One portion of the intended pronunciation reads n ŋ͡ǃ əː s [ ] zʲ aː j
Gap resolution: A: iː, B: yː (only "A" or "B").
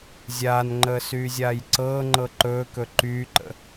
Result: B